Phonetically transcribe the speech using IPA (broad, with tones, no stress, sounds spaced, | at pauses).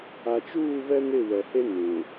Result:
a˨ t͡ʃ uː˦˨ β ɛ˦ n ɪ˦˨ w ɛ˨ h e˦ n ũ˨